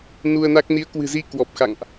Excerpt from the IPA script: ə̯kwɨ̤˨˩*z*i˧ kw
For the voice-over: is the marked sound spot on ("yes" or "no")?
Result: yes